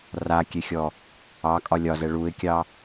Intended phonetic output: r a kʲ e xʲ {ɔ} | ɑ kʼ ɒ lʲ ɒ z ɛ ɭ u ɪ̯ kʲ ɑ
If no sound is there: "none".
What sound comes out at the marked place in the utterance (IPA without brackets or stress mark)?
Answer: ɔ